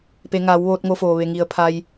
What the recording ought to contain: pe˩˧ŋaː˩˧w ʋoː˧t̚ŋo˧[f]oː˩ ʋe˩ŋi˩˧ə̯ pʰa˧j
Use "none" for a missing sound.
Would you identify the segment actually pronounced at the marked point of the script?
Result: f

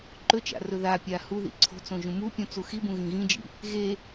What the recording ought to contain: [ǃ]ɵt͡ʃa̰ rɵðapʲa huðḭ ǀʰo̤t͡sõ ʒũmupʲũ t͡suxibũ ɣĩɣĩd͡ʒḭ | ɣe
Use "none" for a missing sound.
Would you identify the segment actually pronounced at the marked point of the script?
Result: ǃ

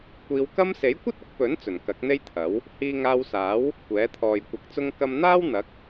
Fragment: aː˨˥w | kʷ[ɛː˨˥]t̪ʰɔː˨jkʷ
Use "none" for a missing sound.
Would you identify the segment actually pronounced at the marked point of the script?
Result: ɛː˨˥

